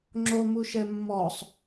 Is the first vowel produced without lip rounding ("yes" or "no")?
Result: no